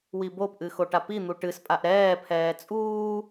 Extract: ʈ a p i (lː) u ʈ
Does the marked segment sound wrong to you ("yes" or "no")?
yes